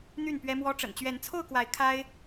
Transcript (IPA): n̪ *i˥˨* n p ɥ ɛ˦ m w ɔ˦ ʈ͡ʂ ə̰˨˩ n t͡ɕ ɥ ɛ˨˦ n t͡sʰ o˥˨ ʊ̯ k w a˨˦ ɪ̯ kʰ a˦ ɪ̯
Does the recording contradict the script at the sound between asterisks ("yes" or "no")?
yes